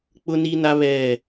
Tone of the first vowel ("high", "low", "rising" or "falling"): high